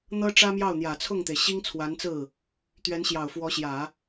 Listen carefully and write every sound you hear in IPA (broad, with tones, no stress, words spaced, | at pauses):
n̪ɤ˥ ʈ͡ʂä˥mjɑ˥˩ʊ̯ n̪jä˨˩t͡sʰʊ˥˩ŋt̪e˩ɪ̯ɕi˥ŋ t͡sʰwa˧˥nt͡sɹ̩˥˩ | t̪ɥɛ˧˥nɕjɑ˨˩ʊ̯fwɔ˧˥ɕjä˨˩˦